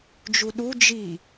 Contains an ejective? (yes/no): no